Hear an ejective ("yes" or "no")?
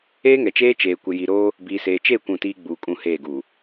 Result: yes